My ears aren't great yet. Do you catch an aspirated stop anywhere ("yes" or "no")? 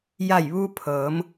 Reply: yes